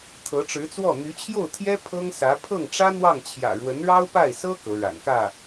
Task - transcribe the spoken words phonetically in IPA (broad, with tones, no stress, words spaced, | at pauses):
t̪ʰɤ˧˥ʈ͡ʂɻ̩˧˥t͡swɔ˥˩ n̪y˧˥t͡ɕʰjo˥˩ʊ̯t̪ʰjɛ˥ pʰɤ˥ŋsä˧˥ pʰɤ˥˩ŋʈ͡ʂä˥ n̪wɑ˥˩ŋt͡ɕʰjä̰˨˩ ɻwə˧˥nɻɑ˥ʊ̯pa˥˩ɪ̯sɤ˥ kɤ˧˥ɻa̰˨˩nkä˥˩